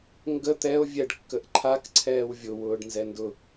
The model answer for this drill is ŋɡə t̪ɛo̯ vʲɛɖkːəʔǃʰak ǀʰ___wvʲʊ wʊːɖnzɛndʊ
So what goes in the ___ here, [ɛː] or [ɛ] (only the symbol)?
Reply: ɛː